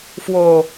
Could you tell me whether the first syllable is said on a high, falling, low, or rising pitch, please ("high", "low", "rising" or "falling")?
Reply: low